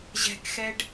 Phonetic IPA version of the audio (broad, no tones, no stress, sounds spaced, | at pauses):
ʑ ɛ̤ k x ɛ ɖ